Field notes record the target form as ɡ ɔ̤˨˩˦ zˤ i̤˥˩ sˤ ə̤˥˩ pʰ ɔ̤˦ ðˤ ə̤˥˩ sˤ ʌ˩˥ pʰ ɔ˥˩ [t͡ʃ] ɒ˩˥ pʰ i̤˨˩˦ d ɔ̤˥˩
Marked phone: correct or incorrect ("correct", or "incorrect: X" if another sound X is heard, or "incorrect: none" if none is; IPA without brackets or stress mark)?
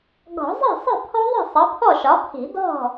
incorrect: ʃ